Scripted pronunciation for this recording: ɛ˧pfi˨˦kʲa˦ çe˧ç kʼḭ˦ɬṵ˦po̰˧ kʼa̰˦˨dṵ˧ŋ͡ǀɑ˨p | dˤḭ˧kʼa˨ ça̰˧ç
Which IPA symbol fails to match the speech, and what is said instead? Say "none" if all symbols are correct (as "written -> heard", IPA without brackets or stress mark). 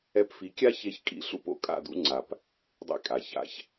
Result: ɑ˨ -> a˨